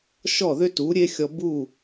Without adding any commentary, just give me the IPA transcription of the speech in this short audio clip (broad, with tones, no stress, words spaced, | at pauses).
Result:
ʃɔ˥˩ðʏ˥tu˩˥ ɾʲe˥xʲɔ˧bu˥˩